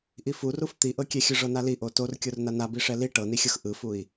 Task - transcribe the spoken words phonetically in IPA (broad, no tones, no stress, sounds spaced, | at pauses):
ʔ i f u r u f t̪ i ʔ ɤ kʲ ɛ xʲ ɯ ʐ ɤ n a l i ʔ o t o r kʲ o r n a n a b i ʂ ɛ l i ʈ ɤ n i xʲ ɤ x ʔ ɯ f u i̯